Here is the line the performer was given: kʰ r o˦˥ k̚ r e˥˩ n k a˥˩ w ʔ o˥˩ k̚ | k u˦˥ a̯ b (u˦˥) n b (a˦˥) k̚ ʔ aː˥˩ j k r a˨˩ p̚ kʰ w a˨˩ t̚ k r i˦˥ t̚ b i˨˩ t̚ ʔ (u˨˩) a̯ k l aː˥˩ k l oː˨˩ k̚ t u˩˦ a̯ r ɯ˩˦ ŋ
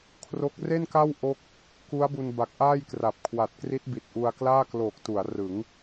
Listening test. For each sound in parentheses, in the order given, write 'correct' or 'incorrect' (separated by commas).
incorrect, incorrect, incorrect